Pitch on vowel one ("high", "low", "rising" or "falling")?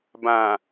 low